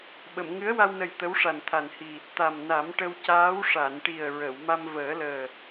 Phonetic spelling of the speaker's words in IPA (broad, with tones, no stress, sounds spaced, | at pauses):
ɓ ə˨˩˨ m ŋ ɨ˧˥ ə̯ w a˧ w n ə˨˩ j t̪ ə˧˥ w ʂ a˨˩ n t̪ʰ a˨˩ n h i˨˩ | t̪ a˨˩ m n a˨˩˦ m ʈ ə˧ w c aː˧˥ w ʂ a˨˩˨ n ʈ i˨˩ ə̯ ɹ ə˨˩˨ w m a˧ m v əː˨˩˦ l əː˨˩